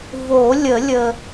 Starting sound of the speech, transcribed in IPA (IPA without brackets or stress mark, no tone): v